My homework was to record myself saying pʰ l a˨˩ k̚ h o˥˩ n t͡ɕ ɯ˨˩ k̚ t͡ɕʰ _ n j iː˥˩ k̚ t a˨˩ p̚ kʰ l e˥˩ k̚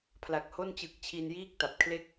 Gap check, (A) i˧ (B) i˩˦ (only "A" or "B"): A